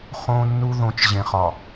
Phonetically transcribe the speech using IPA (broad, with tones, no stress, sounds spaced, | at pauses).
χ õ˨ nː u˦ ð õ˨˦ t͡ʃ ʑ ẽ˨ χ ɒ˨